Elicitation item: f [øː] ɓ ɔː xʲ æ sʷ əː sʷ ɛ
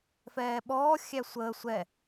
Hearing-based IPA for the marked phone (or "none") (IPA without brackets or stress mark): ɛː